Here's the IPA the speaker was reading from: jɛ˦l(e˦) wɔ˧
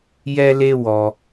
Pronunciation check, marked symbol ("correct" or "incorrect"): correct